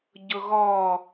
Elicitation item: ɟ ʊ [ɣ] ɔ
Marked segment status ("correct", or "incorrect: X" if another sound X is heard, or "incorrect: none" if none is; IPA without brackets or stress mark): correct